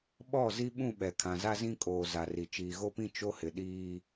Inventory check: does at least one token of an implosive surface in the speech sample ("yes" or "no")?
yes